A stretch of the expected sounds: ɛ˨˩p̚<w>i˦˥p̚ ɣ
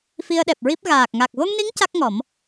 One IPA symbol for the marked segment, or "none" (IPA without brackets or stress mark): ɹ